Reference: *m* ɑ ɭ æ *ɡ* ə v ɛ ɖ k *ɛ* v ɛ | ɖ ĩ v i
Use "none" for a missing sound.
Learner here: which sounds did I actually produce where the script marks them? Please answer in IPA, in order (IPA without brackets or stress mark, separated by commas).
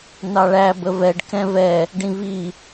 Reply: n, b, ɛ̃